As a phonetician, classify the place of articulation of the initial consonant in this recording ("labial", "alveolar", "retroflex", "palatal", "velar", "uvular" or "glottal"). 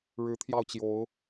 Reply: retroflex